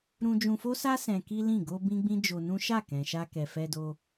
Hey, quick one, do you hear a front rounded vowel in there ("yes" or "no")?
no